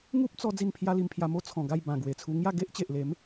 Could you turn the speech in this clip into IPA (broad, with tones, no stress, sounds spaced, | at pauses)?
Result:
ŋ u˦ p̚ t͡s ɔ˧ d͡z i˥˧ n pʰ j a˦ l i˧ m pʰ j a˧ m o˦ t͡sʰ ɔ̃˨˩ ɡ a˥˧ j b ã˨˩ ɡ w e˨˩ t͡sʰ u˧ ŋ j a˥˧ ɡ e˦ ʔ t͡ɕ e˨ ʔ l e˨˦ m